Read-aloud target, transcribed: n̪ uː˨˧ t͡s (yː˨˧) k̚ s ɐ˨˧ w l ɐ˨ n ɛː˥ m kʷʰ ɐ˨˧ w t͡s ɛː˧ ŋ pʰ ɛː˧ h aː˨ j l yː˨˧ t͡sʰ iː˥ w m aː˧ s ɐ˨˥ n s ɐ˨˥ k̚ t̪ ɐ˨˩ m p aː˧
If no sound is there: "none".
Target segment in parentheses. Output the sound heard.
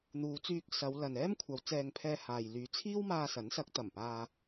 yː˧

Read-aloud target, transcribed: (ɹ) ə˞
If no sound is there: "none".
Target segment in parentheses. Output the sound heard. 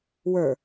w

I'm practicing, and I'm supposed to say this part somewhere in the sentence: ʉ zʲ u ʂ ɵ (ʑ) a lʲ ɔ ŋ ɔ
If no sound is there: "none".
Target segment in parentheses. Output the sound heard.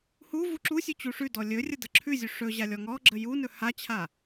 ʑ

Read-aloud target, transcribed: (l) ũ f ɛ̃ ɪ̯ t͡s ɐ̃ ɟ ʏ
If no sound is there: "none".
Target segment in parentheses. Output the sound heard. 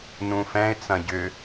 n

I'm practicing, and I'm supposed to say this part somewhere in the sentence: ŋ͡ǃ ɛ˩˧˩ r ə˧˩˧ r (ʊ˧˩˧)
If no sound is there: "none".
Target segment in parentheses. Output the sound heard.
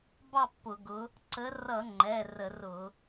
ʊ˧˩˧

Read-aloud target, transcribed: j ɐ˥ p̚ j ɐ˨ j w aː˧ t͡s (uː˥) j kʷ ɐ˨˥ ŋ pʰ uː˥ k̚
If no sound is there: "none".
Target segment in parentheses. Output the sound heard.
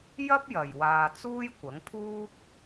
uː˥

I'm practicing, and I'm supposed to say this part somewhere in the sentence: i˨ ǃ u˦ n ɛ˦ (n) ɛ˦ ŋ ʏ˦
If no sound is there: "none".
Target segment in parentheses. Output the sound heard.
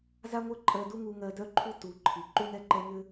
ǃ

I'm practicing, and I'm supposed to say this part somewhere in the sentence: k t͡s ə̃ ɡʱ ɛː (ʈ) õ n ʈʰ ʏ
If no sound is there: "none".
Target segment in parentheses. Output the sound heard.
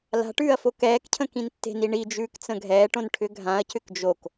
ʈ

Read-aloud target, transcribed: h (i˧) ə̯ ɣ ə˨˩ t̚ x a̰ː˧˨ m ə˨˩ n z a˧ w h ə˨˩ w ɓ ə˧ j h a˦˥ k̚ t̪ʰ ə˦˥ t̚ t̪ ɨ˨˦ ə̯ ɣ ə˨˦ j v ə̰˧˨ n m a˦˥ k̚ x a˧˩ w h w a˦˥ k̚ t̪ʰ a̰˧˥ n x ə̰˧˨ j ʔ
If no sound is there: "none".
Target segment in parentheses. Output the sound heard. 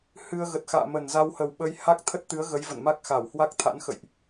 ɨ˧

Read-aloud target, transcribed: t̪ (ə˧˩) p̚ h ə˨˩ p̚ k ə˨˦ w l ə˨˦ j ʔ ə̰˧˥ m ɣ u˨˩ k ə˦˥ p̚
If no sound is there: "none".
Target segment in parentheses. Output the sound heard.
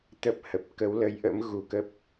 ə˦˥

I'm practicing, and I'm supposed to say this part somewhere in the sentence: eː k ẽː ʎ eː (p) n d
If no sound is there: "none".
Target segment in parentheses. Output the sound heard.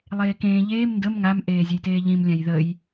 m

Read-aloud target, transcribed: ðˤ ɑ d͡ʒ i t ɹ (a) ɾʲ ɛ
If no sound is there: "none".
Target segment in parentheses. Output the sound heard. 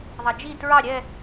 ɑ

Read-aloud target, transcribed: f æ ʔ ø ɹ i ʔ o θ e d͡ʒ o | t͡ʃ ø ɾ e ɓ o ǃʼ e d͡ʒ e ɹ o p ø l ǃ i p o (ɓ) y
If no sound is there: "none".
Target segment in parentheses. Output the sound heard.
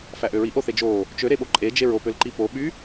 ɓ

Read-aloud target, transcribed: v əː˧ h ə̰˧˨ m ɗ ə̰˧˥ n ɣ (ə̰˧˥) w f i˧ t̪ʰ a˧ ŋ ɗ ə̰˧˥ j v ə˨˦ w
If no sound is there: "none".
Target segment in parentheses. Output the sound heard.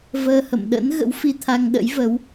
ə̰˧˥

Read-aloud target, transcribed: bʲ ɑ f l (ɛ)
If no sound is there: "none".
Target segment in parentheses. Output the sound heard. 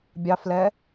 ɛ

